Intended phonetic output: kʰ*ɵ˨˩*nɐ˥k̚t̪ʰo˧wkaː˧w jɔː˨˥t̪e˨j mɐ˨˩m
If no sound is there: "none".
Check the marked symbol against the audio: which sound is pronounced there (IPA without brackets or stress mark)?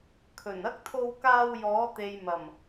ɵ˨˩